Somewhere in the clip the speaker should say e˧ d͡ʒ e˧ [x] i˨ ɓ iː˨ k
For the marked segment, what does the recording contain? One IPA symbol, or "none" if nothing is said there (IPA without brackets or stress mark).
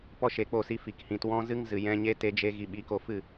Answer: ɣ